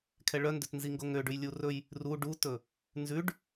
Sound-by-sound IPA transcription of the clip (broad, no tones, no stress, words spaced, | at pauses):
kʰɛɭœndøt nziŋɡoŋøɖʉj lʲurɵj | ru ɖutɵ | nzʉɖ